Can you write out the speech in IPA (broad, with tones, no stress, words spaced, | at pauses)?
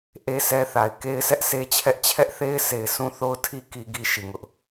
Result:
ʔe˦sɛ˦ θa˨ɪ̯ ke˦ɪ̯sʰɛ˦ʔsʰe˦t͡ɕʰɛ˦ʔ t͡ɕʰɛ˦ʔθe˦ɪ̯sʰe˨ɪ̯ sʰũ˦θo˦ʊ̯tʰi˦ ki˦ɡi˦ʃi˨ŋʊ˦ʔ